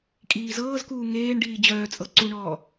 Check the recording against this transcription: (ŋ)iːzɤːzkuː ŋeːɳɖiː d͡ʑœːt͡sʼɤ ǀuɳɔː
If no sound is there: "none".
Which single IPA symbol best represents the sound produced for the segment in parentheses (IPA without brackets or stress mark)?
kʼ